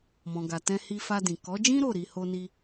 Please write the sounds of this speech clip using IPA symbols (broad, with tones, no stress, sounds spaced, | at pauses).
m ɔ̃˨ ɡ a˨ t ɛ̃˧ h i˧ f a˧ d ĩ˨ k ɔ˨˦ d͡ʒ ĩ˦ ɾ o˦˨ ɾ i˧ h o˦ n i˦